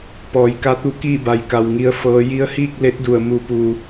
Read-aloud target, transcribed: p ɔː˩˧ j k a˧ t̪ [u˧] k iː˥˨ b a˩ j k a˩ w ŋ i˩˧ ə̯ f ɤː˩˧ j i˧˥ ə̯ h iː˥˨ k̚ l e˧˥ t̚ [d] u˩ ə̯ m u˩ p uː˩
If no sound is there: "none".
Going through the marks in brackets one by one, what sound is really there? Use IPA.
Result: u˧, d

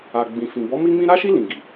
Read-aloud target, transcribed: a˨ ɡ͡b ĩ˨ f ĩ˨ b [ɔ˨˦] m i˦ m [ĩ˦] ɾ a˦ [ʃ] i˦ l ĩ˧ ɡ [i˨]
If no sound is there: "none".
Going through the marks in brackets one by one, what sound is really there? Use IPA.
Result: ɔ˨˦, ĩ˦, ʃ, i˨

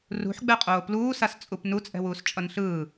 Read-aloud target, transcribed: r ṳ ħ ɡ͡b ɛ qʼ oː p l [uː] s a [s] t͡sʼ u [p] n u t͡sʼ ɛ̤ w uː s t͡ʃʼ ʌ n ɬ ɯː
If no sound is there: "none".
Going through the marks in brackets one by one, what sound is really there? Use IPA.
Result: uː, s, p

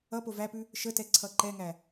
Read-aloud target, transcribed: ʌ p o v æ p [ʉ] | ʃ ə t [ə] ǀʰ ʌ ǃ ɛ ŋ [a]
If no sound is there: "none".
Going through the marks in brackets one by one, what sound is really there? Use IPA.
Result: ʉ, ɛ, æ

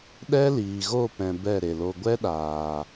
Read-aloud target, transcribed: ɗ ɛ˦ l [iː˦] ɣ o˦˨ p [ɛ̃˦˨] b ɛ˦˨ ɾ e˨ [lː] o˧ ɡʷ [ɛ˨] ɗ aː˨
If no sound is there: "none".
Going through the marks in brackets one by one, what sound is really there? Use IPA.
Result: iː˨, ɛ̃˨, l, ɛ˦

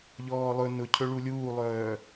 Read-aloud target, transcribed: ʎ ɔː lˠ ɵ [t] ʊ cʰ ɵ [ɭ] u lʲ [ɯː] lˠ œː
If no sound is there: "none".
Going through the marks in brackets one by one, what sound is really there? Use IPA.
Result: n, ɭ, uː

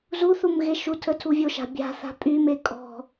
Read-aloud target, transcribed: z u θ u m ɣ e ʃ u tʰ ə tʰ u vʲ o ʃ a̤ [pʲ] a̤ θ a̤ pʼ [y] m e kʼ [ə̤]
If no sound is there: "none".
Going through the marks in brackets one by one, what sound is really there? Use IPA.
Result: bʲ, y, ɔ̤

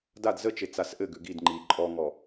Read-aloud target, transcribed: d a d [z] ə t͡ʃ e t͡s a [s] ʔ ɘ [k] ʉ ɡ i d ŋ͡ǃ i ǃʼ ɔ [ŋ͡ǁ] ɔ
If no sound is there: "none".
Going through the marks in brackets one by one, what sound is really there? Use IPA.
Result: z, s, ɡ, ŋ

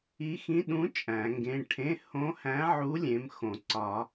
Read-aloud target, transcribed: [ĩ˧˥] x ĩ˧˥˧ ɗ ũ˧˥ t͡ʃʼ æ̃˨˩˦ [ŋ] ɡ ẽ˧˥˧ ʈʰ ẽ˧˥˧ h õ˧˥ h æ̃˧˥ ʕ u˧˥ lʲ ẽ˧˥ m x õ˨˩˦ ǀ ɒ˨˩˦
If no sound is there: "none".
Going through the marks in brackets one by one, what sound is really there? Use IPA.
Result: i˧˥, ŋ

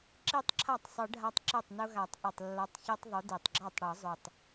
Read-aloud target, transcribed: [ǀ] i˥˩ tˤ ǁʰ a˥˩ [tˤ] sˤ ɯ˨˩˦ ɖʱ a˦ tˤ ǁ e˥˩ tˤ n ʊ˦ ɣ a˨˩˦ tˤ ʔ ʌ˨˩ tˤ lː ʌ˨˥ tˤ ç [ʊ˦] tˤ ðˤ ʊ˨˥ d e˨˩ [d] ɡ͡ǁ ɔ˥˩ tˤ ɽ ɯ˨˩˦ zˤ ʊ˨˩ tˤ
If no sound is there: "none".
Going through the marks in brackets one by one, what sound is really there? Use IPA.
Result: ǁ, tˤ, ɯ˦, tˤ

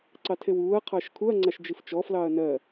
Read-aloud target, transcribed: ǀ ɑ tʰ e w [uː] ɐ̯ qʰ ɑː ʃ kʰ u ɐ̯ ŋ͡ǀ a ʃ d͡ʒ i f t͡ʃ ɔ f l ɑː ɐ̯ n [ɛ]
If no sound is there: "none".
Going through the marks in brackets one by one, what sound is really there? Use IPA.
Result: uː, ɜ

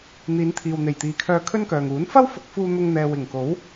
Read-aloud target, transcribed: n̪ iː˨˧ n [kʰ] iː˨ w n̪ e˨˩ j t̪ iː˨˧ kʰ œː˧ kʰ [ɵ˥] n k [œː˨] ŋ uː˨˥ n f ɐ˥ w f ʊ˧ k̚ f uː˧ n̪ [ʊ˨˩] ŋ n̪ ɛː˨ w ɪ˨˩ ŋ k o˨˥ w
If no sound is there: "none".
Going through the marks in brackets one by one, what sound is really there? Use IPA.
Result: t̪ʰ, ɵ˥, œː˨, ʊ˧

